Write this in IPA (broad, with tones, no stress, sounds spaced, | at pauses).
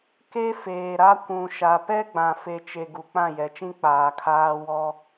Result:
k e˦ f eː˨ ɾ a˦ kʷ ũ˨ ʃ a˨ p ɛ˦ ɡ͡b ã˨ f e˨ t͡ʃ e˨ ɡ u˨ k͡p ã˦˨ j ɛ˨ t͡ʃ ĩ˦ k͡p aː˨ kʰ aː˦ w ɔ˦